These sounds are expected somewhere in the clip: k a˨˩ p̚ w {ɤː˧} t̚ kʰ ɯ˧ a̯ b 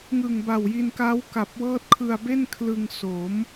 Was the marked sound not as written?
yes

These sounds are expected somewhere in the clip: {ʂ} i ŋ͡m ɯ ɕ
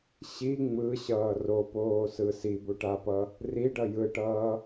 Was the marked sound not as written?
yes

